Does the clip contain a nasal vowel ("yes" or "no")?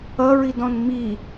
yes